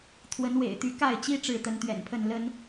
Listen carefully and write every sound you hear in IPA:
t̪ʰ w ə˨˦ n w ḛ˨˩ ɪ̯ t̪ y˨˦ k a˥˨ ɪ̯ t͡ɕ i˦ ʈ͡ʂ ɻ̩˥˨ t̪ ə˦ n t̪ ɥ ɛ̰˨˩ n pʰ ə˥˨ n l ə˨˦ n

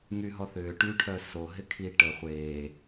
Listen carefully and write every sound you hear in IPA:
ŋ y ɦ ɔ θ ʏː ʈ y ʈʰ œ s o ɦ ɪ kʰ i ʈ ə χʷ eː

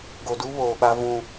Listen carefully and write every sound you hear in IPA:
ɡ o˨ d u˦ β oː˨ ɓ a˦ v ũ˦

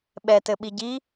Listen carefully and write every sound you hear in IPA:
ɓ ɛ t ɘ ɓ i ɟ i

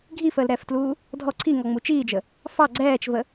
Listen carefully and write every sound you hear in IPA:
ɡʱ i f əː l ɾ ɛː f t l uː | dʱ ɔ ǀʰ i ŋ ɔ ŋ͡m u t͡ʃ iː d͡ʒ ə | f ɑ ɡ͡ǀ ɛː t͡ʃ v ə

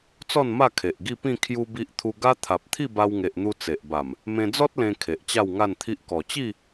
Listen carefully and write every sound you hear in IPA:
t͡s ɔ˥˧ n m a˥˧ kʰ e˨ ʔ ɡ i˥˧ p ĩ˥˧ kʰ j u˧ b i˦ ʔ t̪ʰ u˧ ɡ a˦ t̪ʰ a˨ p̚ t̪ʰ i˥˧ b a˧ w ŋ e˨ ʔ n̪ u˧ t͡s e˨ ʔ b a˨˩ m | m ẽ˧ d͡z ɔ˦ t̚ l ẽ˧ kʰ e˨ ʔ t͡ɕ a˥˧ w ŋ a˥˧ n t̪ʰ i˦ ʔ k ɔ˨˩ t͡ɕ i˥˧

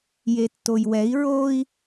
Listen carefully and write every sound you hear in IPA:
j e tː o j w ɛ i̯ ɹ o i̯

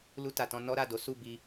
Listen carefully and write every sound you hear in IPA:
l u˧ t a˨ t ɔ̃˧ n ɔ˦ ɾ a˦˨ d o˨˦ s u˦˨ b i˧

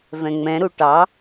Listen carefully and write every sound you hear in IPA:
v ɛ̃ ŋ͡m ɛ̃ ɾ u ʈ ɑ

